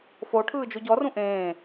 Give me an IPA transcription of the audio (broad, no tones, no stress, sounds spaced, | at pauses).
f o ʈʰ ɯː d͡ʒ o ɟ ɔ r ũ ʔ ẽː